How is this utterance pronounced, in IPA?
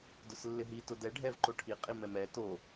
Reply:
d ʊ s lː ɪ ɦ i t ʊ d ɛ ɖʱ ɛ v ǃ o ʈʰ i qʼ i m ɛ m ɛ t o

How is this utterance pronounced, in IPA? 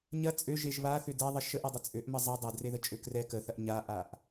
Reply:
ɲ ɐ t͡sʼ ø ʒ e ʒ β a θ ʏ d ɛ ðˤ ə ʃ ə ʔ ɛ dˤ ʏ t͡sʼ ø ʔ m ə zˤ ɛ dˤ ɐ d r e ð ə t͡ʃʼ ø k r ɛ k ə θ ɐ ʔ ɲ a ʔ a ʔ

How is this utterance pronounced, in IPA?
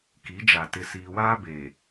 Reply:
k i˨˦ d͡ʒ a˨ t ɪ˨ s iː˨ w aː˦ b eː˨

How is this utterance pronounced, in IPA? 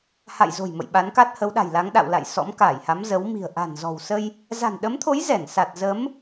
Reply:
h a̰˧˨ j z o̤˨˩ j m ə̰˧˨ j ɓ a˨˦ n k a˦˥ t̚ h ə˨˦ w ɗ a̤˨˩ j l a˨˦ ŋ ɗ a̰˧˨ w l a̰˧˨ j s ɔ̰˧˥ m k aː˧˩ j h a˨˦ m z ə˨˦ w m i̤˨˩ ə̯ ʔ a̤˨˩ n z ɔ̤˨˩ w s ə˧ j | z a̤˨˩ n ɗ ə˨˦ m t̪ʰ o˨˦ j z ɛ˧˩ n s a˨˩ t̚ z ə˨˦ m

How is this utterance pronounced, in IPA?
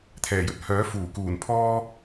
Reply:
t̪ʰ ɛː˨˩ j ɵ˧ t̚ h œː˨˥ f uː˨˩ k uː˨˩ n pʰ ɔː˥

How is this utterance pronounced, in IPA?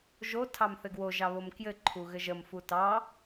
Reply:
ʒ o tʰ ɑ m θ ɘ ɡ w o ʒ ɑ β o m k j ɘ ǃʰ u ɣ ɘ ʒ ə m f u t ɑ

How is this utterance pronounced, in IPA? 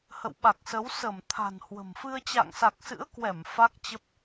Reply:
h ə̰˧˨ w ɓ a˨˩ k̚ s ə˨˦ w s ə˧˩ m t̪ʰ a̤˨˩ n h w ə̤˨˩ m f ɨ˧ ə̯ t͡ɕ a̰˧˨ ŋ s a˨˩ k̚ s ɨ̰˧˥ ə̯ k w ɛ˧˩ m f a˦˥ k̚ t͡ɕ ə˦˥ p̚

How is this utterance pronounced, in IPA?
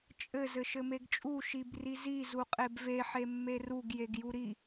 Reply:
t͡ʃʼ ɘ z ɘ ʃ ɘ m e ɡ t͡ʃʼ u ʃ i b r i z i z u qʼ e b v e ħ e mː e r u ɡ j e ɡ j u ɾ i

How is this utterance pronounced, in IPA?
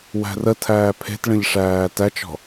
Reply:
w æ̤ r ə tʰ æː pʰ e̤ t ɭ ə̃ ʎ ʂ æː t æ t͡ʃ ɔ̤

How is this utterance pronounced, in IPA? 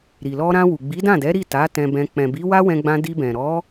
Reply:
ɾ i˨ l ɔ˧ ɾ ã˧ w u˨ ɡ͡b i˨˦ d ã˦˨ d ɛ˨˦ ɾ i˦˨ t a˨˦ t ɛ̃˧ b ɛ̃˧ k͡p ɛ̃˨ b i˨˦ w a˦ w ɛ̃˧ ɡ͡b ã˧ d i˧ b ɛ̃˨ ɾ ɔ˨˦

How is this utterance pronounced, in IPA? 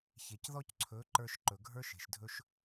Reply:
ç e˨ c ð ɔ˦ c ǀʰ ɵ˨˦ ǃ ə˞˧ ʃ ǃ ɵ˨ ɡʱ ə˞˦ ʃ e̤˨ ʃ dʱ ɵ˦ ʃ

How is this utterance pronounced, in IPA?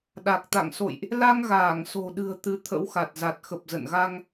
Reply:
ɗ a˨˩ k̚ t̪ a̰˧˨ ŋ s o̰˧˨ j ʔ | l a˧ ŋ ɣ aː˧˩ ŋ s o̤˨˩ ɗ ɨ̤˨˩ ə̯ t̪ ɨ˨˦ t̪ʰ ə̰˧˥ w x a˨˩ t̚ z a˨˩ t̚ x ə˨˩ p̚ z ə̰˧˨ n ɣ a˧ ŋ

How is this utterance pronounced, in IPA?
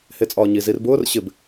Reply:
h e t͡sʼ ɒː ɲ i z i r b ʊː r ɕ ɪ b

